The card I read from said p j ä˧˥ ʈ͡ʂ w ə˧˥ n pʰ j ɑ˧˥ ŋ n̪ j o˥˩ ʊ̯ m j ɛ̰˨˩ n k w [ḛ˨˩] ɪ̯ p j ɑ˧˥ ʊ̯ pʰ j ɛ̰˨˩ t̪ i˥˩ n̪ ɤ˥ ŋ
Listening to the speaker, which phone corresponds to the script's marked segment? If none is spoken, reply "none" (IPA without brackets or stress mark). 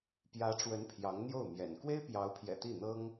e˥